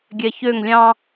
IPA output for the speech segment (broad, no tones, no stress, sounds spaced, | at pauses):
ɡʲ ɛ ç ø ŋ lʲ ɑ̃